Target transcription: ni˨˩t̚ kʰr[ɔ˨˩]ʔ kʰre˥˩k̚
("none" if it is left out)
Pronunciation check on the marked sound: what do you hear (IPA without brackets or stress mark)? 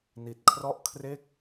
ɔ˥˩